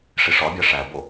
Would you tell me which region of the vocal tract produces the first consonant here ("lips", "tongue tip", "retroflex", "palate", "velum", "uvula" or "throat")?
retroflex